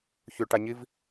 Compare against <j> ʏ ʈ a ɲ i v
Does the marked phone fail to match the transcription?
yes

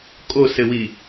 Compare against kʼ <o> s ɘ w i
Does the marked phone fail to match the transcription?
no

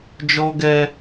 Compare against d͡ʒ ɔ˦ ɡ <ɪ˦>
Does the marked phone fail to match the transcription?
yes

